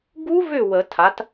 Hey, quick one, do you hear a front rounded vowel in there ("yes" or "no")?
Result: yes